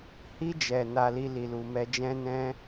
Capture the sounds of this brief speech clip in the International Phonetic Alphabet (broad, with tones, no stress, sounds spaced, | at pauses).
h i˧ d͡ʒ ɛ˨ n a˧ l i˧ l i˨ l u˨ m ɛ˧ d͡ʒ ɛ̃˦ n ɛ̃˦